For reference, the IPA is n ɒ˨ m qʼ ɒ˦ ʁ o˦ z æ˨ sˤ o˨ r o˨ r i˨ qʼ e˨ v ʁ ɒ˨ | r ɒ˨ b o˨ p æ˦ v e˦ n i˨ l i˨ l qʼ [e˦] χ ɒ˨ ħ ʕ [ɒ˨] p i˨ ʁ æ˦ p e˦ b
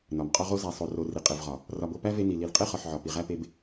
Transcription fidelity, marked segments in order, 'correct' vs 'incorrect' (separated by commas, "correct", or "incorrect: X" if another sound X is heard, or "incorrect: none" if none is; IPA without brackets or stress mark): correct, correct